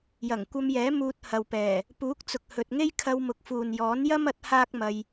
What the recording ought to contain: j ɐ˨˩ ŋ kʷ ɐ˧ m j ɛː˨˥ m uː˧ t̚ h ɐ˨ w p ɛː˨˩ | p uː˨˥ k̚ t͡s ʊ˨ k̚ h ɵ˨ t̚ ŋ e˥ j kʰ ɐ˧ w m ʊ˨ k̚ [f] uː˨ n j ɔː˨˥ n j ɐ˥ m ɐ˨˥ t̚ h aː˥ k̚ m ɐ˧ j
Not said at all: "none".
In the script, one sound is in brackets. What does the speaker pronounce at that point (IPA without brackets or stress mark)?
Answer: f